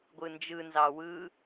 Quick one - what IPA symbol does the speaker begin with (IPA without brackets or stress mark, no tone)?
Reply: ɡʷ